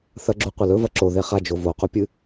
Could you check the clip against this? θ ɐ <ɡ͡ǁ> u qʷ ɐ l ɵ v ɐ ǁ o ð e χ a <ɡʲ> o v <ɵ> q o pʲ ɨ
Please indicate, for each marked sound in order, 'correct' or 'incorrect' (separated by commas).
correct, incorrect, incorrect